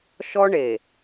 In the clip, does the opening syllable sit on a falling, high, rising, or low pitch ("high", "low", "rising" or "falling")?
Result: high